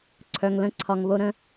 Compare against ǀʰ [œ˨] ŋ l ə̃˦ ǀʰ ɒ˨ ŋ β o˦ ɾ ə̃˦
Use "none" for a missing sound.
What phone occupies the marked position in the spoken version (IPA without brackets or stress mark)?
œ˨